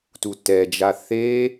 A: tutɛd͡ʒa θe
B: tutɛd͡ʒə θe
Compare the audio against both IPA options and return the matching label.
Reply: A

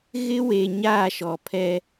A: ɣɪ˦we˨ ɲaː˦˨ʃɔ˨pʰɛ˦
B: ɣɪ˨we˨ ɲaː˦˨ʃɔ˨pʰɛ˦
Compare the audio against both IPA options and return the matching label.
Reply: A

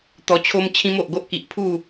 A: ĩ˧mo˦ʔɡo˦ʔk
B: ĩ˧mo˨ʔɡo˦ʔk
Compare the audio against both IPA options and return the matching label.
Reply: B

